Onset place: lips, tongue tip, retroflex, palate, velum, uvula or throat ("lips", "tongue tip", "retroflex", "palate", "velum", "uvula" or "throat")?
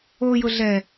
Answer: palate